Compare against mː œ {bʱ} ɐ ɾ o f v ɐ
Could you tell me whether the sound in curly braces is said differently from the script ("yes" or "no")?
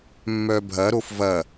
no